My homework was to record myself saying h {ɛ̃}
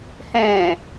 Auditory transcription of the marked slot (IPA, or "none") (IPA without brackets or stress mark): ɛ̃